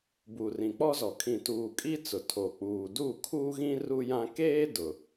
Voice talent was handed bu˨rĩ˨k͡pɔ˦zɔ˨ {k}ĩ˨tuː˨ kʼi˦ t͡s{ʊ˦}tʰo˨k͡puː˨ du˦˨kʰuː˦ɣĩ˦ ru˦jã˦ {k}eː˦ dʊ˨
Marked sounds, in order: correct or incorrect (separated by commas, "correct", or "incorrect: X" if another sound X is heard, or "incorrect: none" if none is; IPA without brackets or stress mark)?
incorrect: kʰ, incorrect: ʊ˨, correct